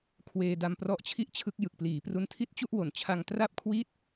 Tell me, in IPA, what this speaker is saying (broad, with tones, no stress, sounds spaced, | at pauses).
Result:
kʰ w eː˧ d a˧ m p r ɔ˦˥ ʔ t͡ɕʰ i˥˩ ʔ t͡ɕʰ ɯ˦˥ k̚ j ɯ˨˩ k̚ p l iː˩˦ p r u˦˥ n tʰ i˥˩ t̚ t͡ɕ u˥˩ ʔ w o˨˩ n t͡ɕʰ a˧ ŋ t r a˥˩ p̚ kʰ w i˥˩ t̚